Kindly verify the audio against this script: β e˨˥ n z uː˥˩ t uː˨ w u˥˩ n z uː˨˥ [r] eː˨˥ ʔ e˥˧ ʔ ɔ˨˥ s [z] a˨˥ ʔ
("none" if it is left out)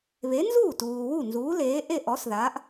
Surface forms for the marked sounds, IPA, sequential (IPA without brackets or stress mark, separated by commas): l, ð